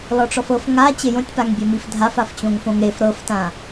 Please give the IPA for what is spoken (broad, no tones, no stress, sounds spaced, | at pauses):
l ɔ ʈ͡ʂ ɔ f ɤ f ŋ a t͡ɕ e j õ tʲ p a ŋ bʲ ɛ m i f dʱ a f a f t͡ɕ õ ŋ f õ ŋ ɾ e f ɾ ɤ f t ã